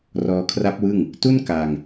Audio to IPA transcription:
r ɔː˧ kʰ r a˦˥ p̚ w ɯ˥˩ ŋ | t u˥˩ n k a˧ ŋ

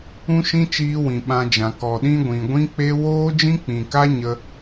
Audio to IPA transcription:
ũ˦ ʃ ĩ˦ t͡ʃ iː˦ w ĩ˨ ɓ ã˧ d͡ʒ ã˨ k ɔ˨ ɗ ĩ˦ ɡʷ ĩ˨ ɡʷ ĩ˦ k͡p e˦ w oː˦ d͡ʒ ĩ˦ k͡p ĩ˨ k a˦ ɲ ə˦

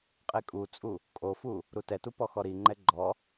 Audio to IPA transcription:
qʼ e kʼ u t͡sʼ u | kʼ o f u | ɾ u t ɛ t u p ɔ x ɔ ɾ i ŋ͡ǃ ɛ ɡ͡ǃ ɔ

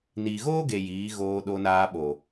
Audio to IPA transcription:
n iː˨ ɣ oː˦ ɡ e˨ j iː˨˦ ɣ oː˧ ɗ o˧ n aː˧ ɓ o˨

